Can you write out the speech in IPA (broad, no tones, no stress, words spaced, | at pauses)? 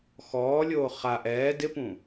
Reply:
xɔːlʲoː χa ʔɛː dɪpũ